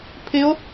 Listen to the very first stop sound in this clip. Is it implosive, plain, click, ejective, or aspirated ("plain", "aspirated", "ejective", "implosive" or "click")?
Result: aspirated